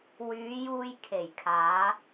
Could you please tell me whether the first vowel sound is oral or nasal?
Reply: oral